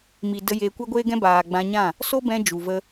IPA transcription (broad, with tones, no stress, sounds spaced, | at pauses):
m i˨ d ə˧ j eː˧ kʷ ɛ˦ ɡʷ eː˦ ɡ ɛ̃˦ b aː˨ ɡ͡b ã˧ ɲ ã˦˨ | s o˦ b ɛ̃˧ d͡ʒ u˨ v ə˧